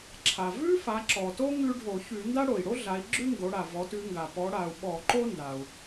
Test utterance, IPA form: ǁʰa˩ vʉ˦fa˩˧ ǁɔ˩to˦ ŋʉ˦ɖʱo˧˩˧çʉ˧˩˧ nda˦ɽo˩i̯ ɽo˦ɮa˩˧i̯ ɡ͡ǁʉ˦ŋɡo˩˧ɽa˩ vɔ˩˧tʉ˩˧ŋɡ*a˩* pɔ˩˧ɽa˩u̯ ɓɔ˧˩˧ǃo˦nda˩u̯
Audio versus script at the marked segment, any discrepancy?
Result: no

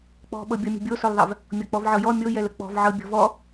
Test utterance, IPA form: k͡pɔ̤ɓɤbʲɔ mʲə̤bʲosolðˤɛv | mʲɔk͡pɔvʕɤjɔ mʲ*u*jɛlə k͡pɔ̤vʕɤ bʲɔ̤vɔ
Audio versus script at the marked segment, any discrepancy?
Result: yes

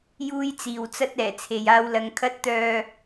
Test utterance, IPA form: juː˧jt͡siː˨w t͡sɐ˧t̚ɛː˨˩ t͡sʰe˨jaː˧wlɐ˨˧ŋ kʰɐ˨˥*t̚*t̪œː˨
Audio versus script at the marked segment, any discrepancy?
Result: no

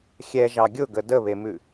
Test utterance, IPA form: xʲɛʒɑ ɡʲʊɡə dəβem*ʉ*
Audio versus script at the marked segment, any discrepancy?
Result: no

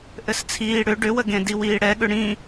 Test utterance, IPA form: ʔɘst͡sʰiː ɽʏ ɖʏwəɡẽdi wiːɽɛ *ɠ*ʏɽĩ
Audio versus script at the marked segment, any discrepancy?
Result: no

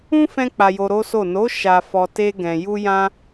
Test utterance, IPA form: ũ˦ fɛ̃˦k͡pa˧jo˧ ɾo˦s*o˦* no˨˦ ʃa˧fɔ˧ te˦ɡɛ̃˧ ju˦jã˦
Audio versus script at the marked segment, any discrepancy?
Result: yes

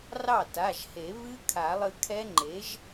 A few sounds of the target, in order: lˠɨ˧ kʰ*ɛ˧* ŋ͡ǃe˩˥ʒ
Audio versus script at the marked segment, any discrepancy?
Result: yes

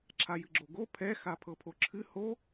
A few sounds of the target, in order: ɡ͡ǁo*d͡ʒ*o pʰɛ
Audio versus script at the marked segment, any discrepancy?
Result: yes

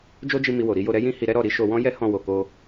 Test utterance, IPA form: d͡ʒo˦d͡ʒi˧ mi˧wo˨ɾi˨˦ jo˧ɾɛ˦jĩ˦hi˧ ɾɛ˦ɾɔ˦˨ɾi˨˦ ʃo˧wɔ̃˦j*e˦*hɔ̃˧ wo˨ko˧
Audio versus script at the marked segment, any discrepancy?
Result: yes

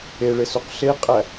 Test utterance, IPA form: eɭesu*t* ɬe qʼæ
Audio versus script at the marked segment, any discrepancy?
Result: yes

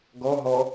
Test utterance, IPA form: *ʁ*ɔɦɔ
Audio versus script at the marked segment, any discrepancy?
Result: yes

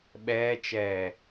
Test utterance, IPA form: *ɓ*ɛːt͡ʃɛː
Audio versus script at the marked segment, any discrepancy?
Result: no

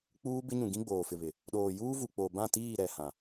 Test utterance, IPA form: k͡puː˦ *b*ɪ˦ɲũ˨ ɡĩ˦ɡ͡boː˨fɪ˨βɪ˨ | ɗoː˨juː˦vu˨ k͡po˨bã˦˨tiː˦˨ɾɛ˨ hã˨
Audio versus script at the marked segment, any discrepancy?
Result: no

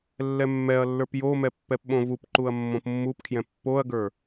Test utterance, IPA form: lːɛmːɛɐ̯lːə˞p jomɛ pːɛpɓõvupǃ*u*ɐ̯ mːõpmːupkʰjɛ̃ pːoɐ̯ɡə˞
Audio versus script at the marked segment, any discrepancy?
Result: no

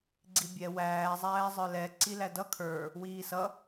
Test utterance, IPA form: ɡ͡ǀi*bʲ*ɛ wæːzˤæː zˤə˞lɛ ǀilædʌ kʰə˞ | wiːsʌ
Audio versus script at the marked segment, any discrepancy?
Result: no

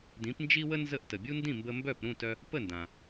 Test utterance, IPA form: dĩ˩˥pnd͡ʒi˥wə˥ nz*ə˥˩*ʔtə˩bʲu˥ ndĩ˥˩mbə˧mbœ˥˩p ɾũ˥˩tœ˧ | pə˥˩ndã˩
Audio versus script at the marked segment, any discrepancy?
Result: no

